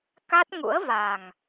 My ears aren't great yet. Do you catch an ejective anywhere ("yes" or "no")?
no